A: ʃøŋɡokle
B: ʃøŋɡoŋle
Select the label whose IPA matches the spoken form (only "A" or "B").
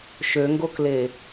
A